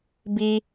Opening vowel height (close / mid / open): close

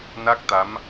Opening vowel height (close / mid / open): open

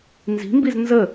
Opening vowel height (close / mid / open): close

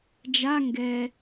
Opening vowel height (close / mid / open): open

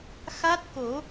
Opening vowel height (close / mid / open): open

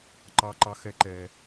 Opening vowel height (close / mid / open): open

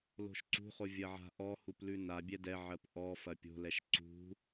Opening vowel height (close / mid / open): mid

